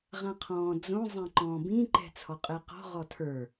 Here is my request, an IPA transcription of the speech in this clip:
ʁ ã qʰ ɔ̃ː d͡z õ zˤ ɛ̃ ǃ ɔ̃ː b ĩ ǃ ɛ̤ t͡sʰ ɔ qʼ ɛ q ɔ̤ ʁ ɔ tʰ ə˞

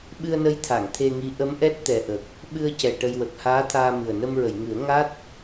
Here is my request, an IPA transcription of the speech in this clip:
ɓ ɨ˧ ə̯ n ə˧˥ j t̪ʰ a˨˩˨ ŋ t̪ʰ e˧ ŋ i˧˥ ʔ ə˧˥ m ʔ ɛ˦˥ t̚ t̪ ɛ˨˩ ʔ ə˨˩ k̚ | ɓ ɨ˧ ə̯ c ɛ˨˩ ʈ ə˧ j w ə˨˩ k̚ h aː˧˥ t̪ʰ aː˧ m ɨ˨˩ ə̯ n ə˧ m ɹ ə˨˩˨ j ŋ ɨ˨˩˦ ə̯ ŋ a˦˥ t̚

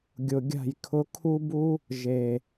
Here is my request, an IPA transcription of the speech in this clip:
ɡʲ ʊ˨ ɡʲ a̤˦˨ j kʰ ʊ˧ kʰ u˦ b u˦ | ʒ e˨

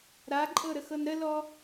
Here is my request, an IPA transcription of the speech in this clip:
ɾ a ǃʼ ɤ ɾ ə x ɤ n ɾ ə l ɔ

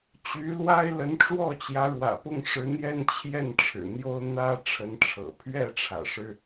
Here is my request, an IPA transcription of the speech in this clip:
t͡ɕ y˧˥ l w a˥ ɪ̯ l ə˧˥ n ʈ͡ʂ w ɔ˥˩ t͡ɕ j ä˧˥ ɻ w ä̰˨˩ p ʊ˥˩ ŋ ʂ ɻ̩˧˥ n̪ j ɛ˥ n t͡ɕʰ j ɛ˥˩ n ʈ͡ʂʰ ɻ̩˨˩ n̪ j o˥ ʊ̯ n̪ ä˥ ʈ͡ʂʰ ə˧˥ n ʈ͡ʂʰ ɤ̰˨˩ pʰ ɥ ɛ˥˩ ʈ͡ʂʰ ä̰˨˩ ʂ ɻ̩˥

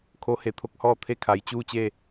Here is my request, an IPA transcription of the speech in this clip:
kʰ o˧˥ h e˩˧ t̪ʰ o˧ k̚ h ɔː˥˨ t̪ʰ e˥˨ kʰ a˩˧ j t͡ɕ uː˥˨ t͡ɕ e˥˨

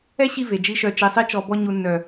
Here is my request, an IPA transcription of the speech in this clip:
ɛ˦ ɕ i˧ v e˨ d͡ʒ i˦ ʃ œ˧ t͡ʃ i˨˦ sˤ i˦ t͡ʃ ɔ˧ b ɔ˧ ɲ u˨ nː œ˨

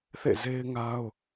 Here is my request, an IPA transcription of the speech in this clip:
θ ḛ˦˨ z e˦ ɪ̯ ŋ a˦ ʊ̯

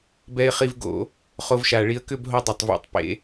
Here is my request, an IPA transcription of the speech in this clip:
b ɛ˧ ɪ̯ χ i˧ v ɡ o̰˧˩˧ | χ o˧ v ʃ a˨˩ ɭ i˧ ə̯ k ʏ˥˧ b ɦ o˧ dˤ e˨˩ tˤ v ḭ˨˩ tˤ p ḛ˧˩˧

